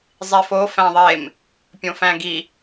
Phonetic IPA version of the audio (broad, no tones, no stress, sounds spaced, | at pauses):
zˤ i f o f æ̃ ðˤ e m | pʲ õ f æ̃ ɡ i